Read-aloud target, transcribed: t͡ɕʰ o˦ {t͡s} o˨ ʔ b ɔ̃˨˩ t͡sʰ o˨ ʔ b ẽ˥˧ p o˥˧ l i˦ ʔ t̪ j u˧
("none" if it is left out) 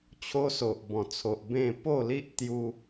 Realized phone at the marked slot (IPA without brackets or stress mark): s